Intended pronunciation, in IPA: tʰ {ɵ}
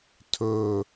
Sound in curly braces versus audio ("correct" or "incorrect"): correct